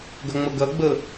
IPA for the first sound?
ɡ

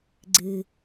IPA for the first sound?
ɡ͡ǀ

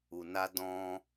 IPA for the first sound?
u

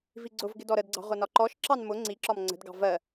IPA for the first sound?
v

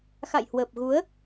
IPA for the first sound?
x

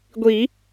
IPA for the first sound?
ɡʷ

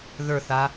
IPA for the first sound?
ð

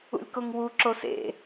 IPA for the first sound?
ṵ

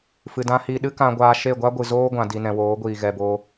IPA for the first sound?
f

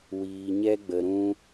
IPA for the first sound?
w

